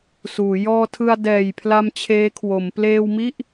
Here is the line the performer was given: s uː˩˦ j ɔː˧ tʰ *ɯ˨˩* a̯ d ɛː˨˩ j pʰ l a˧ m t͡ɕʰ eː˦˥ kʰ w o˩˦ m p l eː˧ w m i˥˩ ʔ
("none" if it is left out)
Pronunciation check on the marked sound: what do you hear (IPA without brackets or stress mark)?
ɯ˧